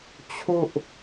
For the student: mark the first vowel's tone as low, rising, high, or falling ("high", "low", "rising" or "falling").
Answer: falling